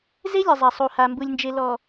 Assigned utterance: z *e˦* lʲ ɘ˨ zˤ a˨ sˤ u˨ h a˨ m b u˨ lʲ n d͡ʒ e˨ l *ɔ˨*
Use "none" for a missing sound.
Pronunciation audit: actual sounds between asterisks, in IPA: e˦, ɔ˨

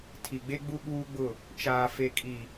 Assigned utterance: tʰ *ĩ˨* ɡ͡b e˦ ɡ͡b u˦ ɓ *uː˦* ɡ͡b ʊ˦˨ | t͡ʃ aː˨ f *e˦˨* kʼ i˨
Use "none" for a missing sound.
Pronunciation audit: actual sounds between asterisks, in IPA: i˨, uː˦, e˨

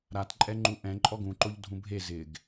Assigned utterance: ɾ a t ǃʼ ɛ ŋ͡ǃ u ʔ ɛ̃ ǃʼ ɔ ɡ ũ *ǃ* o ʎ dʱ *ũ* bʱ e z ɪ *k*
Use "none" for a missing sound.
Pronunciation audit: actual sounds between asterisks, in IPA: ǃ, ũ, ɡ

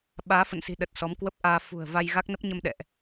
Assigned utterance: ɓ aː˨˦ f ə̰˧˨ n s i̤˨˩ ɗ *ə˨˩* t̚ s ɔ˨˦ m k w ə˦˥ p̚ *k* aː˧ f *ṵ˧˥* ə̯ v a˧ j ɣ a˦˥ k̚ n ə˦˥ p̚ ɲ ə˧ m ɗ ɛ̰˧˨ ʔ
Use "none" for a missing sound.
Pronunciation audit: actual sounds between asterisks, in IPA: ə˨˩, ʔ, ṳ˨˩

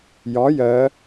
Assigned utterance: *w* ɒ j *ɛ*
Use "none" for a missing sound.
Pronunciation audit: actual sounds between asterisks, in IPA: j, ɜ

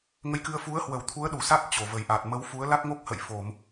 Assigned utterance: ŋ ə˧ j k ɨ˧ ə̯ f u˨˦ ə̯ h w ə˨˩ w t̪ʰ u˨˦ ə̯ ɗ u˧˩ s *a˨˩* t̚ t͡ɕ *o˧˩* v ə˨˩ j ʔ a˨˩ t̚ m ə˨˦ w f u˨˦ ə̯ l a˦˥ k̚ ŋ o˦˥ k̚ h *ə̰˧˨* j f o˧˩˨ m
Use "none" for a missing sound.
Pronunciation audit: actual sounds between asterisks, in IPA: a˦˥, o˧˩, ə̰˧˨

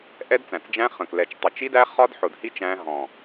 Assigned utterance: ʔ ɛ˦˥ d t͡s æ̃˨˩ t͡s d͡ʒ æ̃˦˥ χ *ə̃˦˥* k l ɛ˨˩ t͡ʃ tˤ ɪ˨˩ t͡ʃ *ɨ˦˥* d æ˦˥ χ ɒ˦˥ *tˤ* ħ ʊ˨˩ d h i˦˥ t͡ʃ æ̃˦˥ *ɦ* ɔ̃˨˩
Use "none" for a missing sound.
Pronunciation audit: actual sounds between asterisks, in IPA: ə̃˨˩, i˦˥, d, ɦ

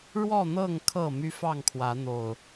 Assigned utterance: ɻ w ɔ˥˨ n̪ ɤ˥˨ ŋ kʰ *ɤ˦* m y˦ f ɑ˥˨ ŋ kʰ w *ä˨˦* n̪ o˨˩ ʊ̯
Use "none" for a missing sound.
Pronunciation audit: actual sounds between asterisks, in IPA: ɤ˥˨, ä˨˦

